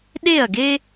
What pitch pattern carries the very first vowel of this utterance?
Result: falling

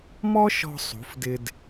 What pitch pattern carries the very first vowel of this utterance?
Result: high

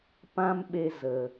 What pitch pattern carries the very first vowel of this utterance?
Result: high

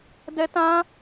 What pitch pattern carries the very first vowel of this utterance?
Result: high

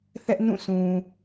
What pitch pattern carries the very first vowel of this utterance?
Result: high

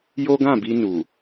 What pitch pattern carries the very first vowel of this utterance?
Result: high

